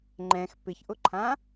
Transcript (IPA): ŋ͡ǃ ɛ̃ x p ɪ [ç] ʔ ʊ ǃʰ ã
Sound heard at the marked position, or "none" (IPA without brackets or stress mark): ç